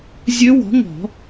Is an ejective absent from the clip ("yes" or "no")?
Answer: yes